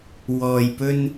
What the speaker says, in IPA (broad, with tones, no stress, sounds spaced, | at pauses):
w ɔː˨ j p ɵ˧ n